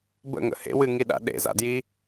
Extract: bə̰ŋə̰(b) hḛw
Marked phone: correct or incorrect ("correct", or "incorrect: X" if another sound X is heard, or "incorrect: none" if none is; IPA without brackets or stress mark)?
incorrect: none